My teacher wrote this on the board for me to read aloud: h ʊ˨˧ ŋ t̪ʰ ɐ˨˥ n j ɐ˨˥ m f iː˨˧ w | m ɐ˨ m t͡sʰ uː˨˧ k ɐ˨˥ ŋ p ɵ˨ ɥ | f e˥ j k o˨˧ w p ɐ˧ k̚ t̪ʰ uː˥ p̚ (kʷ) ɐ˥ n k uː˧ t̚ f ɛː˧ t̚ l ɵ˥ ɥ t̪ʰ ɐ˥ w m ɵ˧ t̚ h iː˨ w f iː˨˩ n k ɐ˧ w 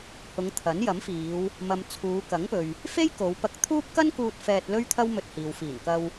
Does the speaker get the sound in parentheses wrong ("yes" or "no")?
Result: yes